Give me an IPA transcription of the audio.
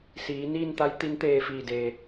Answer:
s iː˩˧ n iː˥˨ n t̪ a˧˥ j t̪ i˧˥ n t̪ eː˧ f iː˧˩ d eː˩

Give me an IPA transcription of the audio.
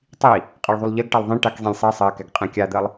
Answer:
tˤ i | qʼ ɜ ɭ ðˤ u lˠ ʎ ɜ ɡ ʈ ɛ lˠ ðˤ ĩ ʈ a k zˤ ĩ lʲ sˤ i sˤ ɜ k ɛ ɡ qʼ ɛ̃ kʲ a d̪ ɜ lˠ

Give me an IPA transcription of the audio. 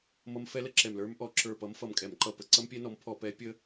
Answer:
m ʌ˦˥ m f ɛ˦˥ l ə˨˥ ǁ ɛ˧˩ m l ə˞˦˥ m ʔ ɔ˧˩˧ ǁ ə˞˧˩ p ʌ˨˥ m f ʌ˧˩ m kʼ ɛ˧˩˧ m ǃ ʌ˧˩ p ə˧˩˧ ǀ ʌ˦˥ m pʲ ɛ˦˥ n ɔ˨˥ m pʰ ɔ˧˩˧ p ɛ˨˥ pʲ ə˦˥

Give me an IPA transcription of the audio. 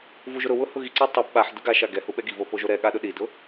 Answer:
v u ʒ ʊ ɾ ʊ w ʊ h ʊ ɣ i ǀ a tˤ i p ɓ a ħ d ʊ ɡ a ʃ a ɡ ɛ h u ɓ ɛ ɡ i v o p o ʒ o ɾ ɛ ɠ a ɗ ʊ ɗ i d ʊ

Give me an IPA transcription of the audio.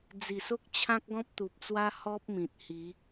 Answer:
d͡z i˨˩ s o˦ k̚ t͡ɕʰ ã˦ k̚ ɡ ɔ̃˦ p̚ t̪ u˨ p̚ t͡s w a˦ h ɔ˦ p̚ m ĩ˨ t̚ h i˨˦

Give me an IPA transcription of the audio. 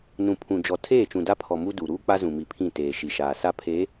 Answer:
n ũ˨ pʰ ũ˨ d͡ʒ ɔ˨ tʰ eː˦˨ t͡ʃ ũ˨ d a˦ pʰ ɔ˨ m u˦ d u˨ ɾ uː˦ k͡p a˦ z ũ˨ m i˨ pʰ ĩ˦˨ t eː˨ ʃ i˨ ʃ aː˨ s a˦ pʰ eː˨˦

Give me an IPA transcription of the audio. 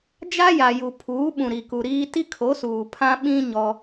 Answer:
d͡ʒ a˦ j a˨ j u˨ pʰ uː˨˦ ɓ ũ˨ ɾ i˨ k u˨ ɾ iː˦ t i˦ kʰ o˨˦ s uː˨ pʰ ã˦ ɓ ĩ˦ ɲ ɔ˦

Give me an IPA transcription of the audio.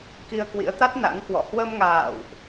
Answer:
k i˧ ə̯ k w ḭ˧˥ ə̯ t̪ a˦˥ t̚ n a̰˧˥ ŋ k w ɔ̰˧˨ h w ə˧ m ŋ a̰ː˧˨ w ʔ

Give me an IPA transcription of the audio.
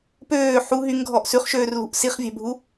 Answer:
p øː ħ u ɦ y ŋ ɡʱ ɔ ʔ s ʉ χ ʃ øː r l ṳ ʔ s i χ vʲ æ̤ bʱ u

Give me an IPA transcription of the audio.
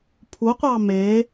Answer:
pʰ u qʷ ɑ m e

